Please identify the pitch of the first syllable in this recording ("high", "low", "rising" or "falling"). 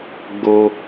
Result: high